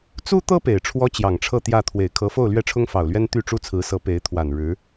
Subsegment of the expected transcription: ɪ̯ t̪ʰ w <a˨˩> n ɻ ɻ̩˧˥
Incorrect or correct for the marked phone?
correct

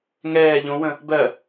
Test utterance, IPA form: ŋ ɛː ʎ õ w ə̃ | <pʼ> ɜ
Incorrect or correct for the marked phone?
incorrect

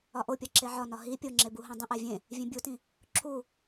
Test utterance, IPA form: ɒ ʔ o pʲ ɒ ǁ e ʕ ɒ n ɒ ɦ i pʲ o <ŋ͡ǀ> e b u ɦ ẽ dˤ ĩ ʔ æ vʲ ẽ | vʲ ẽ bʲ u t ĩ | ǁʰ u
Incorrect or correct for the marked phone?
incorrect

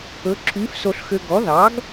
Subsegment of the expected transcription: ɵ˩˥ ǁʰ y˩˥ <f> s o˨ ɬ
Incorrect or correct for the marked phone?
correct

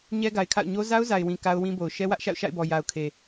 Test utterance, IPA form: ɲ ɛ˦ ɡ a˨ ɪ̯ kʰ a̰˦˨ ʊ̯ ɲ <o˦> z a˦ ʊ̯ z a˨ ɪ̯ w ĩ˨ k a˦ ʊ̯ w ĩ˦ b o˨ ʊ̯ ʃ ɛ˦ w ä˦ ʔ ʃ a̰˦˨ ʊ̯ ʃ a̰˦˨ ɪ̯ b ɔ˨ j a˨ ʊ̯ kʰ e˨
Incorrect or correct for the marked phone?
correct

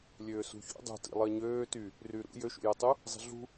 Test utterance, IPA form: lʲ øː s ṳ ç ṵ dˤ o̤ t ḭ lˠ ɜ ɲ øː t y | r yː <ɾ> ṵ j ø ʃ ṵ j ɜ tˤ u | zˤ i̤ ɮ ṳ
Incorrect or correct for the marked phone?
correct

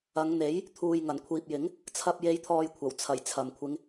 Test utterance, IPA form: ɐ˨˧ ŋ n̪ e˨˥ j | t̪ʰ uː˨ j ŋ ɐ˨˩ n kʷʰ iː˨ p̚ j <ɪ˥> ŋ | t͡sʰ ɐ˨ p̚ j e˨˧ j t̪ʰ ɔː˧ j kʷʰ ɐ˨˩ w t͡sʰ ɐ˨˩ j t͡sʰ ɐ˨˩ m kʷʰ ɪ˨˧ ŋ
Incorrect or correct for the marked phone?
incorrect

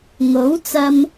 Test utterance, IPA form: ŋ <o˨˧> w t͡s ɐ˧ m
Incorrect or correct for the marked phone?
incorrect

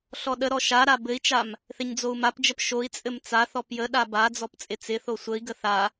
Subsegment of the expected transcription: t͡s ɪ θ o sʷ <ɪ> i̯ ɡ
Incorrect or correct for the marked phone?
incorrect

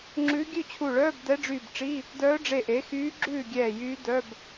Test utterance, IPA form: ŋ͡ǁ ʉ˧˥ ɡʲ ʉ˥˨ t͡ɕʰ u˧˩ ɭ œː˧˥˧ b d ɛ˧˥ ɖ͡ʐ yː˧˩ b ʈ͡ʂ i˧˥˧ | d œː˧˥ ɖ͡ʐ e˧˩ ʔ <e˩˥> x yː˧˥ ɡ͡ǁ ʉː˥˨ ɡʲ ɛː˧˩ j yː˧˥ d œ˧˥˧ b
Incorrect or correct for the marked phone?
correct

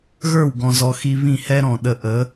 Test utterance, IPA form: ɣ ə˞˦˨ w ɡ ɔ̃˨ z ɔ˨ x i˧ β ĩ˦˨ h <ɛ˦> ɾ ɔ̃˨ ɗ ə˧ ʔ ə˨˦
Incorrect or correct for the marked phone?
correct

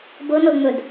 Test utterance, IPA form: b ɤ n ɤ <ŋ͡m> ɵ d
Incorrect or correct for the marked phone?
correct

